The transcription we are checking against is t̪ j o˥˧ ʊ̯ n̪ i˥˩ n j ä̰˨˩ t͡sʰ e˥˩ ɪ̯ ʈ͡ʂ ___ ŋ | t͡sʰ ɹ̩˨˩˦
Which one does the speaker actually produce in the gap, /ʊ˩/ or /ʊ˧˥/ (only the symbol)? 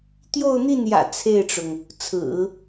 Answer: ʊ˩